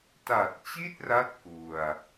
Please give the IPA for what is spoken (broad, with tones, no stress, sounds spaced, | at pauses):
t a˨˩ t̚ t͡ɕ i˥˩ t̚ r a˦˥ t̚ k u˧ a̯